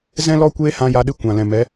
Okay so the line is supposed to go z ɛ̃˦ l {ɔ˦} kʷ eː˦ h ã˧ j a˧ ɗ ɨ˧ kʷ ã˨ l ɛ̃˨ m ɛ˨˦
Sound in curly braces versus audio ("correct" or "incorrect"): correct